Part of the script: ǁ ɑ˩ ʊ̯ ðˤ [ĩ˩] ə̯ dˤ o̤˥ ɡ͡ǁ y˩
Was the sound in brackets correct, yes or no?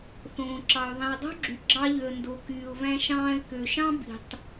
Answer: yes